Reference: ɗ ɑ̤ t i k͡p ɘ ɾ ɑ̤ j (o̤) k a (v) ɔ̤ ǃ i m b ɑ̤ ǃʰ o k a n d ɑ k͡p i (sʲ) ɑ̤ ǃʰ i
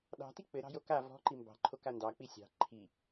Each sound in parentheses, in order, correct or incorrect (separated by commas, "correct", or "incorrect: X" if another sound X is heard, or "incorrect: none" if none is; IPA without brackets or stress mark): incorrect: o, correct, correct